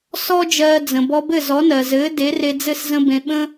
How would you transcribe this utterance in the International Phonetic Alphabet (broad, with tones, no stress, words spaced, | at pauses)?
sɔ˥ d͡ʒɜː˧d͡zə̃˩ bɔ˧bɘ˥˩zɔ˩˥ nɜ˩zɘː˩˥ de˩˥re˧d͡zɘ˥˩s zə̃˥bẽ˧ ɓə̃˥